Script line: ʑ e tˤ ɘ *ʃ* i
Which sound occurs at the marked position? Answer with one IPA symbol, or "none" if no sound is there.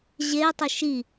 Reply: ʃ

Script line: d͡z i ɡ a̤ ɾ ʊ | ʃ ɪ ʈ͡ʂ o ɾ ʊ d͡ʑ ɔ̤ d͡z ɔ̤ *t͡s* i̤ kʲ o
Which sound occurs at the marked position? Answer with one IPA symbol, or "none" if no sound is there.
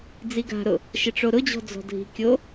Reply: dʱ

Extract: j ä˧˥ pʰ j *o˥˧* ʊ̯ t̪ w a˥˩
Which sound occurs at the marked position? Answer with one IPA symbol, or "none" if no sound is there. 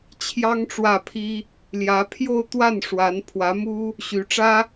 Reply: o˥˧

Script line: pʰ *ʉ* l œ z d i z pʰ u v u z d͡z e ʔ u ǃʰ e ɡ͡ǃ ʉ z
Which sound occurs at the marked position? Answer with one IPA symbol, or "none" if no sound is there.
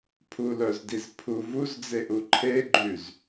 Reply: u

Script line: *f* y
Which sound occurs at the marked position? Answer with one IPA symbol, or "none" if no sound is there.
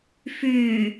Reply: f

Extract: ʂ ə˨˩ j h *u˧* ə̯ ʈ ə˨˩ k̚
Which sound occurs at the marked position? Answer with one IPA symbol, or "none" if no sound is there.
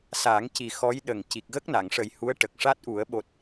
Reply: u˧˥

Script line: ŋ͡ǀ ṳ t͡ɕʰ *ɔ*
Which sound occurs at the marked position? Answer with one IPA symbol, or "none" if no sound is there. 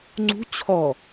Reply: ɔ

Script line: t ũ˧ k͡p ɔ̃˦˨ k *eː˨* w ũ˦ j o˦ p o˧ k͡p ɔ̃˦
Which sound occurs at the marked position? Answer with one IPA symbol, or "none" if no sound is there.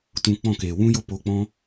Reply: eː˨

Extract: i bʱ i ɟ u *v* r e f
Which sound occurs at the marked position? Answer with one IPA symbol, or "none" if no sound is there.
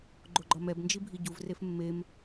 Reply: v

